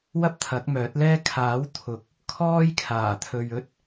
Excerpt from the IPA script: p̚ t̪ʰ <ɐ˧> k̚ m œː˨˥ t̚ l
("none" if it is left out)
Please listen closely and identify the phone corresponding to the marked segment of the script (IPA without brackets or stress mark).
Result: ɐ˨˥